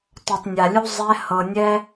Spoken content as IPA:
t ɔ˨ tˤ nʲ a˨ lʲ u˧ zˤ ɛ˧ h ɤ˨ nʲ ɛ˧

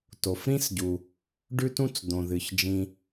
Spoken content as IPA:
t o˩ f ɾ ĩ˥ s ɟ u˩ | ɖ ʉ˥ t ũ˥ t͡s d̪ õ˩ ð ɨ˩ ç d͡ʒ ĩ˩

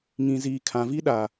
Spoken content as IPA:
ŋ ĩ˨ z iː˨ kʰ ã˨ v i˦ ɗ a˨

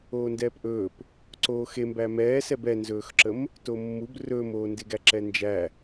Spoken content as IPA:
oː n d ɛː p ʔ ɵː p | ǀ oː x e m b æ m ɛː s ɛ b ɛ n z ɵː x ǁ ə m | t o mː u b r ɵː m oː n d e ɡ æ ǁ ɛ n d͡ʒ æ

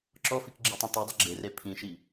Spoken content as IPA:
ǁ ɔ f i k ɡ͡ǁ e tˤ ĩ t a dˤ ɐ ɡ͡ǁ e r e pʰ ĩ ʃ i

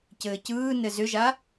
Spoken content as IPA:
c ɘː c ɯː n ɘ z ʏ ʒ a

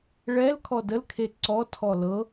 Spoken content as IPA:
ɭ ɛ l kʰ ɔ d ə l kʰ e ǀ ɔ tʰ ɔ l ɤ

